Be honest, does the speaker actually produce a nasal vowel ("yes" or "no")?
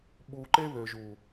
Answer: no